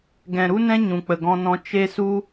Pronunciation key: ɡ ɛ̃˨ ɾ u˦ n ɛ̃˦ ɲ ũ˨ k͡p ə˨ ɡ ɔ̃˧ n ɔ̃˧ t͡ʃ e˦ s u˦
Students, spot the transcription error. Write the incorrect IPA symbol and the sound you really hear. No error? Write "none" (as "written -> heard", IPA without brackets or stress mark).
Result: none